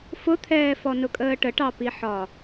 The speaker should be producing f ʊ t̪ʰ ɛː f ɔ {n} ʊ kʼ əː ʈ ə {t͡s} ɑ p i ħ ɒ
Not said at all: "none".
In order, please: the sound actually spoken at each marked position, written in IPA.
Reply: n, ʈ

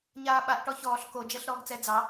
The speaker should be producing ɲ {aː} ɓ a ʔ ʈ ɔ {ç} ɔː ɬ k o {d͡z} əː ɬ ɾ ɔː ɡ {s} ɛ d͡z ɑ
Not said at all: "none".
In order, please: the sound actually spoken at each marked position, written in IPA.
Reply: aː, ç, d͡ʒ, t͡s

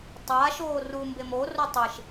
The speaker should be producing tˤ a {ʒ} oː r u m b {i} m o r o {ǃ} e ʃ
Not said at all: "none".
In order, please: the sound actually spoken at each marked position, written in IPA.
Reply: ʃ, e, tˤ

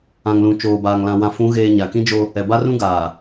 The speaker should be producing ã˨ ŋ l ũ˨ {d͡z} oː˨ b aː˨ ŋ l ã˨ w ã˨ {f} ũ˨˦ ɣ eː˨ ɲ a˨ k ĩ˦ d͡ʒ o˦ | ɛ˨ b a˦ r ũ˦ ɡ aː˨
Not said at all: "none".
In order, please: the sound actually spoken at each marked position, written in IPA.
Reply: t͡ʃ, f

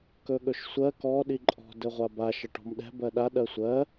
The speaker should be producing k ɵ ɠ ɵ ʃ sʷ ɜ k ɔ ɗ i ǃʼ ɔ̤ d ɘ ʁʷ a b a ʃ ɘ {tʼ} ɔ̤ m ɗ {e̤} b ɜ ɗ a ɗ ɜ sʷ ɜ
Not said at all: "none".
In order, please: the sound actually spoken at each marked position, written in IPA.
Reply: ʈ, ɛ̤

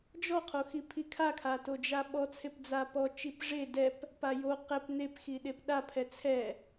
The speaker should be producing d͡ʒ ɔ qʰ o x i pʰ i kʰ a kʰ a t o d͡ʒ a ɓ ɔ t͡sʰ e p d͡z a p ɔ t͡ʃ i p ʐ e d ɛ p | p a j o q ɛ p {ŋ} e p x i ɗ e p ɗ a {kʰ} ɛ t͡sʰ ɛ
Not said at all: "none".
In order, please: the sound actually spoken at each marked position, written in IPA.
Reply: n̪, pʰ

